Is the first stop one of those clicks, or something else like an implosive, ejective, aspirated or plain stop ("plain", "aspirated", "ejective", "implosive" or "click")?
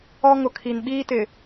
aspirated